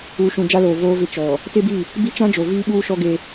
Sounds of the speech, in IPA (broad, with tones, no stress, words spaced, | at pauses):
uː˨ʃũ˨ d͡ʒa˦loː˨ voː˦vɪ˦ t͡ʃɔ˨ | tɪ˦bi˦˨ | bi˦t͡ʃã˦d͡ʒo˨ viː˦ɓuː˦ʃɔ˦ɡe˦